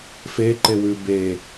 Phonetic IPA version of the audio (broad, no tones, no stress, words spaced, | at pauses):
fe ǃewʉ be